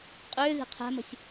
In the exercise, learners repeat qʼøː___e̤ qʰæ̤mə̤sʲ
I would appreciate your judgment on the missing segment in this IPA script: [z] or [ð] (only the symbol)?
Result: ð